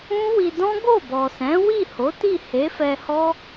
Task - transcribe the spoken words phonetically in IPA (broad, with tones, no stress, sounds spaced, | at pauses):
ũ˦ w i˧ d ɔ̃˦ ɡ o˦˨ b ɔ˨ s ɛ̃˨˦ w i˦˨ h o˨˦ t i˦˨ h e˨˦ f ɛ˧ h ɔ˦